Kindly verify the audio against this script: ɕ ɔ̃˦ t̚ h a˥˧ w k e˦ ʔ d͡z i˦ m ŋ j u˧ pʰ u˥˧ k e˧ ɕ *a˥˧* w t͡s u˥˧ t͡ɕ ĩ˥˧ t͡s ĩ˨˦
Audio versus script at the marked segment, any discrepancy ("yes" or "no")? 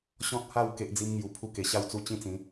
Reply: no